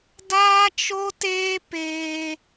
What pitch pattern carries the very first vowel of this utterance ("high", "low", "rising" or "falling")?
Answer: high